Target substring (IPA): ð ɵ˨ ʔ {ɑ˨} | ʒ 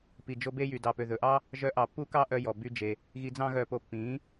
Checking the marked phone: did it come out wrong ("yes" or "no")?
yes